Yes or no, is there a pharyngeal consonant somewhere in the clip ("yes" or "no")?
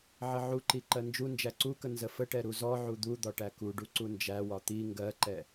yes